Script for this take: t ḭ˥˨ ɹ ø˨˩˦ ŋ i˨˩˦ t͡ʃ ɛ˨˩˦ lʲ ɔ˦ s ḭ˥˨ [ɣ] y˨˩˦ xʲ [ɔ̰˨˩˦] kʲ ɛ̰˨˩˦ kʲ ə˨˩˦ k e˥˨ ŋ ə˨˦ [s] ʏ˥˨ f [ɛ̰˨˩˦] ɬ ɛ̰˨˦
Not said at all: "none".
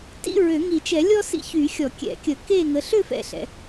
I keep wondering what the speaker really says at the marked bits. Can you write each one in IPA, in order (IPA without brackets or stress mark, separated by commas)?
ç, ɔ˨˩˦, ɬ, ɛ̰˦